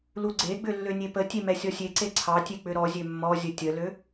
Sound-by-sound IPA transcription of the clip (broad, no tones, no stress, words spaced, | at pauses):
luɡ͡ǀeɡ͡bʏ lːønʲepətʲe mɛsʲɔsʲeǀe ǀʰɑtʲe k͡pʏɾɔzʲø mːɔzʲə tʲəlø